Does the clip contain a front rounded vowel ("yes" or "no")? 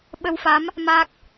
no